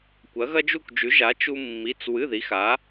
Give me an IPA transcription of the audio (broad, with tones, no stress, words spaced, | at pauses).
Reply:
kʷɐ˨˥ɣɐ˥d͡ʒu˥˨kʷ d͡ʒʉ˨˥ʒa˨˥ t͡ʃu˥ mːi˧˥˧t͡s wɨ˧˥˧ði˨˥xa˨˥